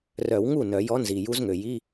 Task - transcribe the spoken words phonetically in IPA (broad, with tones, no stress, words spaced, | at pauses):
rœ˨˩˦wŋu˥˩ nœ˨˩˦jɔ˧˥ nzi˩ju˧˥zŋø˩ji˧˥˧